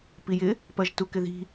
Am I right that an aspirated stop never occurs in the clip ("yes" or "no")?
yes